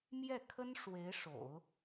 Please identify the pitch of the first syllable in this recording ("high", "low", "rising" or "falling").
falling